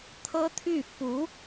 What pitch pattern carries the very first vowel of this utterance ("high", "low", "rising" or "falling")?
high